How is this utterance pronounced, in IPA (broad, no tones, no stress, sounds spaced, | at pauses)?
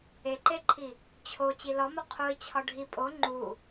e ǃ e ǃʰ i | t͡ɕʰ o t͡ɕ i l ɒ m o qʰ u i̯ t͡ɕʰ ɒ ɖʱ i pʼ o ŋ͡ǃ u